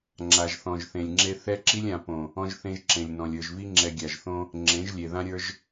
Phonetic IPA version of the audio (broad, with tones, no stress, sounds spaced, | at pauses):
ŋ͡ǁ a˨ ʒ θ ɔ̃˨ ʒ θ ẽ˨ lʲ ŋ͡ǁ e˦ θ ɛ˦ ǁ i˦ lʲ ã˨ p õ˨ | ɔ̃˦ ʒ θ ẽ˦ ʒ ǁ ẽ˨ lʲ n ɔ̃˨ lʲ ə˞˨ ʒ v i˦ ŋ͡ǁ ɛ˨ ɡʲ a˨ ʒ θ õ˦ | ŋ͡ǁ ẽ˨˦ ʒ lʲ e˨ ð ã˦ ɾʲ ə˞˦ ʒ